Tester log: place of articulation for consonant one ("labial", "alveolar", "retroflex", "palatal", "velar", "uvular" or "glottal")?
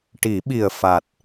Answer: retroflex